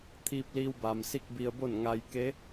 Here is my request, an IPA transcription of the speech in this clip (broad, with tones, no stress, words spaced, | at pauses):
t̪ʰiː˧p̚liː˧wba˩m si˥˨k̚bi˧ə̯bo˥˨n ŋa˧j ke˧˥